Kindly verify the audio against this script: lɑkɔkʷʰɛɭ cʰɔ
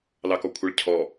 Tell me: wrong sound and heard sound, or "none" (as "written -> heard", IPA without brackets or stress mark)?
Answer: none